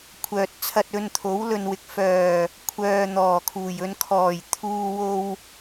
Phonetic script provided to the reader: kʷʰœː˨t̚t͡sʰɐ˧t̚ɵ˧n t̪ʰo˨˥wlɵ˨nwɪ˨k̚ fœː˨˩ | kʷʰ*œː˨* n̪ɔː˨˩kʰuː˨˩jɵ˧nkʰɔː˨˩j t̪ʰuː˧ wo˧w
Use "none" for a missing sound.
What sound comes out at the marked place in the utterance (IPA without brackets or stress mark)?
œː˨